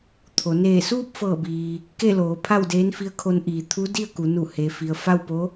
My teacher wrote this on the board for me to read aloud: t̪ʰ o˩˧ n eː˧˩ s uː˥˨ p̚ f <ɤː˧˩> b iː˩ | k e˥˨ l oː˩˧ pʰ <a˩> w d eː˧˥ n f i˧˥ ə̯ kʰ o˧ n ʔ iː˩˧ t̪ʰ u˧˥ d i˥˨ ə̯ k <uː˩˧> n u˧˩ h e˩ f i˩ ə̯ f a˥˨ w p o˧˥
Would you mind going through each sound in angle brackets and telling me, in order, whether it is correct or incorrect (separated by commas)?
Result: correct, incorrect, incorrect